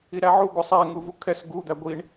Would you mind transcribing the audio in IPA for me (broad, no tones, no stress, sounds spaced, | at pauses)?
i ɾ æ ʕ u ɡʷ ə sˤ æ ŋ u v u kʰ ɛ s ɡ u d̪ æ ɡʷ i ɳ